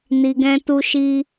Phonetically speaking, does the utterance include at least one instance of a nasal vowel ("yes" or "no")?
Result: yes